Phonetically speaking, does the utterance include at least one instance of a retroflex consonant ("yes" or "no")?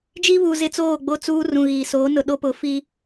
no